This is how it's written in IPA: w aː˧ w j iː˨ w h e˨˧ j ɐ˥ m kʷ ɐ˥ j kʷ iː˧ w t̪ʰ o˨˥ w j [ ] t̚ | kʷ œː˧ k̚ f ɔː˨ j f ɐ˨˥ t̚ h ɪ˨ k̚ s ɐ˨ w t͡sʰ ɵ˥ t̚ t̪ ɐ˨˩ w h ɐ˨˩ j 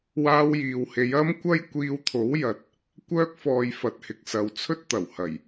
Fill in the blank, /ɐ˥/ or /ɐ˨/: ɐ˨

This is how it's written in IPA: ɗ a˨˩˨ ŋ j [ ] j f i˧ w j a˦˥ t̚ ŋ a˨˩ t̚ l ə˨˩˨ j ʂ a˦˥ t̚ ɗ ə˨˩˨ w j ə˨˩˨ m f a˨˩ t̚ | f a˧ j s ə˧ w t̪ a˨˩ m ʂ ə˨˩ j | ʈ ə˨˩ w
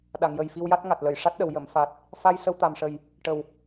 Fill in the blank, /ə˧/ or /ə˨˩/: ə˨˩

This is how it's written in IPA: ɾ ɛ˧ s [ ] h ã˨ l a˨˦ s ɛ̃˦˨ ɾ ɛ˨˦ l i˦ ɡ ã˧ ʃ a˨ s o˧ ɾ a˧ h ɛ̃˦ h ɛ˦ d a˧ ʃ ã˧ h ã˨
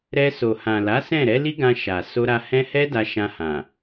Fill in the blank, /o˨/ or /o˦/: o˨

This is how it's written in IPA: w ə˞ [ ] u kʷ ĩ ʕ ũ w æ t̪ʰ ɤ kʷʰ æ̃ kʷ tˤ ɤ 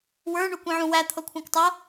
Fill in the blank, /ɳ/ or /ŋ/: ɳ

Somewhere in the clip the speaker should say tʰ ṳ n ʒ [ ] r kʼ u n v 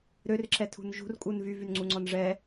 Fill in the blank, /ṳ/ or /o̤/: ṳ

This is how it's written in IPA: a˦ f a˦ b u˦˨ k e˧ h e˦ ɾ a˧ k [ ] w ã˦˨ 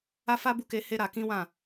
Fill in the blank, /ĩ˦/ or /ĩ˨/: ĩ˦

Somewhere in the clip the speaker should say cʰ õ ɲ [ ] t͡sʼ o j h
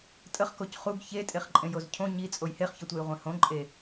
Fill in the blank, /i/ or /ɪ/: i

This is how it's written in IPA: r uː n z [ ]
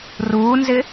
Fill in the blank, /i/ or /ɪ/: ɪ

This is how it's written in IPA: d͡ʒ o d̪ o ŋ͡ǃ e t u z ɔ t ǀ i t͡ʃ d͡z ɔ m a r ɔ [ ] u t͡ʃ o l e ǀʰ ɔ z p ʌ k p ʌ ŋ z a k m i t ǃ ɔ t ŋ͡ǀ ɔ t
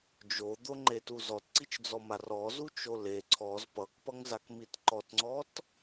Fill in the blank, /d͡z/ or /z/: z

